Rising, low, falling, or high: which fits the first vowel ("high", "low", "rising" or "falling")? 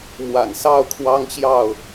low